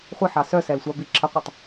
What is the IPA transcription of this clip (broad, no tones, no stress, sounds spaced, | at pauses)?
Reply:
χʷ ə ħ ɑ s œ s ɛ l sʷ ɑ b i ǁʰ ə qʷ i tˤ